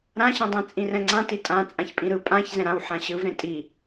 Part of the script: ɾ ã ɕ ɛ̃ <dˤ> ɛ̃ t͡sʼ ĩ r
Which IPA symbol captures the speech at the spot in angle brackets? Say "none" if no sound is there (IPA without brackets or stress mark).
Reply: dˤ